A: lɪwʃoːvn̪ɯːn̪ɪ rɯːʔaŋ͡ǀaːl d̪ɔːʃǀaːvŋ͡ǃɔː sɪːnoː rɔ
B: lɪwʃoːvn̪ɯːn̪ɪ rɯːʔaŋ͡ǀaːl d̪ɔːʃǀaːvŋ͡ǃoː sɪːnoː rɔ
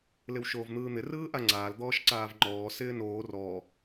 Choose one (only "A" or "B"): A